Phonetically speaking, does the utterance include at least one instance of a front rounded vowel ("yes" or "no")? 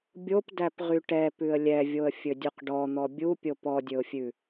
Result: yes